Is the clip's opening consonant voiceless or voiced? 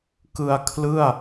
voiceless